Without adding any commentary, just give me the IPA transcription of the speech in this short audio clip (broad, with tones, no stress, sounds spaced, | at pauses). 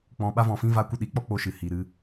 k͡p ɔ̃˨ ɓ a˧ v ɔ̃˨ f ĩ˧ v a˧ kʷ ə˦˨ ɗ i˨˦ k͡p ɔ˦ k͡p o˧ ʃ ɨ˨ h i˨ ɾ ɨ˧